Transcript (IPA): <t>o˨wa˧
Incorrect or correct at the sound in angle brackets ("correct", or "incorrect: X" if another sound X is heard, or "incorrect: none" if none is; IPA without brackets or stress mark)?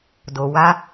incorrect: d